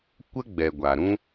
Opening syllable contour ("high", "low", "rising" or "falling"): high